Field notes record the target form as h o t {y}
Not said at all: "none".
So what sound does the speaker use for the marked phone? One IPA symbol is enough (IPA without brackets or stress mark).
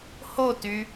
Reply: y